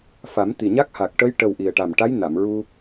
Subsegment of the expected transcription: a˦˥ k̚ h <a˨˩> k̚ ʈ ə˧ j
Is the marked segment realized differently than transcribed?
no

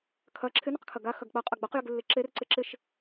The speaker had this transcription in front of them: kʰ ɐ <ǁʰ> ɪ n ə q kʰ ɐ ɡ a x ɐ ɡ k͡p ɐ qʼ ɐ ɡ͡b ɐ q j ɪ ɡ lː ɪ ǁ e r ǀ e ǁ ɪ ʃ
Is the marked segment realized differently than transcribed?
no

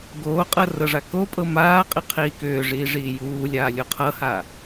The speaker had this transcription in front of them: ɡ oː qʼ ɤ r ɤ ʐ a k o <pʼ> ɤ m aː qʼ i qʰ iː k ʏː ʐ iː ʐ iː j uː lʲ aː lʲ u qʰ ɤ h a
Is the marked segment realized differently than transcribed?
no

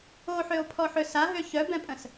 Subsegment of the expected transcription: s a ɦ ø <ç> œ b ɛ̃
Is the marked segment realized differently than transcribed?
no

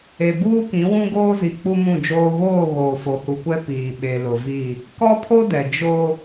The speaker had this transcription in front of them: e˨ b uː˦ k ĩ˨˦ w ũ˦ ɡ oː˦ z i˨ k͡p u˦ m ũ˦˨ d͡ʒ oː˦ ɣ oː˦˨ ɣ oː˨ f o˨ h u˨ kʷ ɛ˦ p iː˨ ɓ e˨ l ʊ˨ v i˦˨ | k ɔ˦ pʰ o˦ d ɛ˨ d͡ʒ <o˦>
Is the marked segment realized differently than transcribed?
no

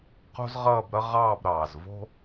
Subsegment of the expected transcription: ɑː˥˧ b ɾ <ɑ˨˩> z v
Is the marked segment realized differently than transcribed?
yes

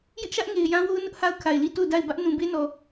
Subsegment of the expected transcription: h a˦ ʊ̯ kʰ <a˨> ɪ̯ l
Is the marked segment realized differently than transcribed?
no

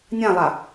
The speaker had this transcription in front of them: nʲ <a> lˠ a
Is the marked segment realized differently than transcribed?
yes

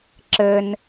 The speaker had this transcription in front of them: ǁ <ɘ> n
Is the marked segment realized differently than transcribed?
no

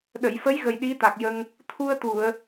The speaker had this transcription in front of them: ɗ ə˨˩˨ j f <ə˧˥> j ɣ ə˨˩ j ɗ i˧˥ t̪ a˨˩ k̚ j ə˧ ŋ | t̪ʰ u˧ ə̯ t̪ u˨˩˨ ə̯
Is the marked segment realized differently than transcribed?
no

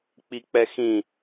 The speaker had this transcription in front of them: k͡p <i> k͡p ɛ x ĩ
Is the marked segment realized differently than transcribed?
no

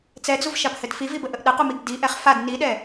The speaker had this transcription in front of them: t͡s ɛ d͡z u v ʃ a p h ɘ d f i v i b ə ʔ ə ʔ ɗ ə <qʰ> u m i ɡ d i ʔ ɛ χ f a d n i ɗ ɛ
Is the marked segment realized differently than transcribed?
yes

